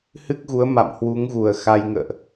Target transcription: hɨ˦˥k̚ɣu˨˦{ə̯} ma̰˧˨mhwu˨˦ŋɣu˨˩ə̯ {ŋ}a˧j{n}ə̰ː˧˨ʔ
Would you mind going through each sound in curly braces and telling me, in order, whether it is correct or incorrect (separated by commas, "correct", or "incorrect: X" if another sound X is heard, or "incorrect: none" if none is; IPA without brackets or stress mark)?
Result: correct, incorrect: x, incorrect: ŋ